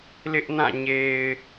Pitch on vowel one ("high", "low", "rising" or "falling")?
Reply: high